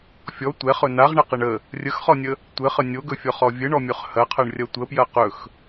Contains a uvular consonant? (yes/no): yes